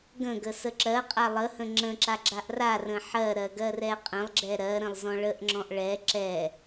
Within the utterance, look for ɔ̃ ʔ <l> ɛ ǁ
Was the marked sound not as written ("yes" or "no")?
yes